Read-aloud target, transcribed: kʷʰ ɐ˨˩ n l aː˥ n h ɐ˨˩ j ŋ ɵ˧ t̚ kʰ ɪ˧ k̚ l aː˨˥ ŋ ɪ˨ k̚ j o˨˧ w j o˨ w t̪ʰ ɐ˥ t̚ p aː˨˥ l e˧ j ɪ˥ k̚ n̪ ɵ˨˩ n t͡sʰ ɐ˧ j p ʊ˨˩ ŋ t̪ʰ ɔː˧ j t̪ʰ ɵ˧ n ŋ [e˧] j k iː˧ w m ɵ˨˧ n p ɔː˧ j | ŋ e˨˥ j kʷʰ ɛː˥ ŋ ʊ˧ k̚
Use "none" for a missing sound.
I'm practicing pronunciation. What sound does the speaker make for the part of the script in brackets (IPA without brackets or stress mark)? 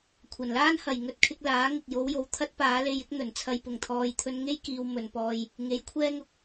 e˥